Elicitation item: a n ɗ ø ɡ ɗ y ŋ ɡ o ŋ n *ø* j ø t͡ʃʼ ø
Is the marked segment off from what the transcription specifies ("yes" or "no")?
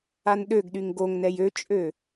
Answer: yes